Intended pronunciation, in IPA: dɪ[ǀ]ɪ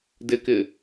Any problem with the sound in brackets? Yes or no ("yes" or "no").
yes